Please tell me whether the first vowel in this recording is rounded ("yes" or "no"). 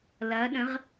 no